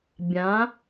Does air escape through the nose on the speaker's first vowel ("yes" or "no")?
yes